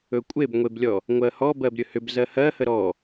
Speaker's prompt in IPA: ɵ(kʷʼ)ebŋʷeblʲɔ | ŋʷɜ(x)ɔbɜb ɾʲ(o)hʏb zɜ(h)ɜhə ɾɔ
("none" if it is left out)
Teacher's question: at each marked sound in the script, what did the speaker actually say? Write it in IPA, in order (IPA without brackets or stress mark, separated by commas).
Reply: kʷʼ, h, ɵ, h